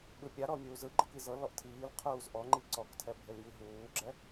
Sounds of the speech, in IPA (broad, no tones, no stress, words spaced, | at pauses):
ɓɯpʲaɾɔ mʲuːzɯɡ͡ǃɯk izɤlɔʔ tʰiːlqʰuːz ʔɔŋ͡ǃi ǀɔktʰɛ bʱeljiɦuːɡ͡ǁɛ